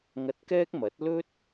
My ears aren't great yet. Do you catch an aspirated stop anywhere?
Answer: no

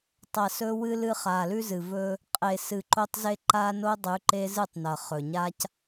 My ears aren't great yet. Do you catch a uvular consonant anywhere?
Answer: yes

